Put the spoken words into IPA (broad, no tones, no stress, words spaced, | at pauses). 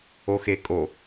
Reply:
oxekʼo